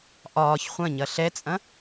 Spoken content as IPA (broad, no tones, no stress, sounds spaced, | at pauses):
ʔ ɒː ç χʷ ɐ̃ ɲ ɐ ɬ ɛ t͡sʼ ɐ̃